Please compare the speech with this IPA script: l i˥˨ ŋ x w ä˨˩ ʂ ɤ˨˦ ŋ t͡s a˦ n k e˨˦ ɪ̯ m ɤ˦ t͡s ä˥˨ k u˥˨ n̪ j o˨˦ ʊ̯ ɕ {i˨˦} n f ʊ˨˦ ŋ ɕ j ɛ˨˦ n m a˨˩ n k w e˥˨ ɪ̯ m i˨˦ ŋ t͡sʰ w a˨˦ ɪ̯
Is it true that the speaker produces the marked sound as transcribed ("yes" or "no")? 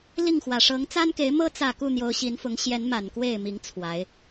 yes